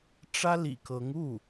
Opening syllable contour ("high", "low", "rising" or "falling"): high